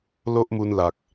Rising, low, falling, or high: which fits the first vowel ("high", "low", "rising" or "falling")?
high